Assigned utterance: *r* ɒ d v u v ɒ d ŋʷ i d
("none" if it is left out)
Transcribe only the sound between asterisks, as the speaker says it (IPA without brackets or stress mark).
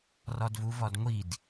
r